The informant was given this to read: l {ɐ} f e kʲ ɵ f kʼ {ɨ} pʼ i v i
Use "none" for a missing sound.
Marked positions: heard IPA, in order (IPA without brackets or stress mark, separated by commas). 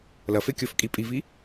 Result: ɐ, i